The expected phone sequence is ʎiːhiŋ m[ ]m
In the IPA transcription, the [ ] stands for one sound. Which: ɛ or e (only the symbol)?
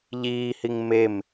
e